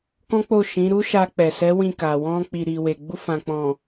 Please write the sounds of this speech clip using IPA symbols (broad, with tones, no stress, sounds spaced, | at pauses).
k ɔ̃˦ k͡p o˦˨ ʃ ĩ˨˦ ɾ u˦ ʃ a˧ k͡p ɛ˨ s ɛ˨˦ w ĩ˦˨ k a˨ w ɔ̃˧ k͡p i˨ ɾ i˨ w e˨ ɡ͡b u˧ f ã˨ k͡p ɔ̃˨